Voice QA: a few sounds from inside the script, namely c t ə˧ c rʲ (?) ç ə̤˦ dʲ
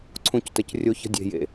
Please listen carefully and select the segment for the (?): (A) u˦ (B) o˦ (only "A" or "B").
B